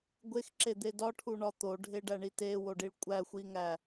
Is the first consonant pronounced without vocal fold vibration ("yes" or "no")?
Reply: no